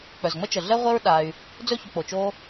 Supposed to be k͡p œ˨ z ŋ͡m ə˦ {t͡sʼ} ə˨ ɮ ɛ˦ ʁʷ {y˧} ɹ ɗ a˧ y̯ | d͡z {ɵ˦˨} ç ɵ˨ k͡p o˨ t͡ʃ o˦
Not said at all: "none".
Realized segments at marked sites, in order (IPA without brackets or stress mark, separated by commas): t͡ʃ, e˧, ɵ˦˨